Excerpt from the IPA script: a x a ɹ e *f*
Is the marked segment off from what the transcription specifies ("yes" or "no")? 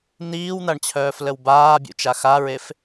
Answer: no